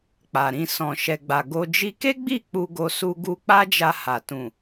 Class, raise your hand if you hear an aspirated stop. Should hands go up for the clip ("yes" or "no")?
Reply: no